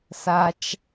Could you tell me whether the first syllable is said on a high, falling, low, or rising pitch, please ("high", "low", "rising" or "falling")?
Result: low